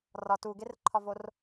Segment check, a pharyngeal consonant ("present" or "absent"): absent